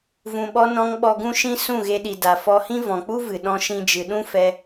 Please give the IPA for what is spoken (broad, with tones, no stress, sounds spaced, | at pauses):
v ũ˨ ɓ ɔ˧ n ɔ̃˧ ŋ ɓ ɔ˧ ɡ ũ˦ ʃ ĩ˦ s ũ˦˨ ɣ e˧ ɗ i˨ d a˨ f ɔ˧ h ĩ˦ v ɔ̃˨ k͡p u˦ v ɨ˨ ɗ ɔ̃˦ ʃ ĩ˦ d͡ʒ ɨ˧ ɗ ũ˦ f ɛ˧